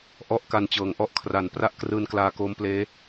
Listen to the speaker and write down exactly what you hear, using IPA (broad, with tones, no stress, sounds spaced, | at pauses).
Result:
ʔ ɔ˥˩ ʔ k a˧ n t͡ɕ ɤː˨˩ ŋ ʔ ɔ˥˩ ʔ kʰ r a˨˩ n p r a˥˩ ʔ k r ɯː˧ n k l aː˧ k oː˦˥ m p l eː˦˥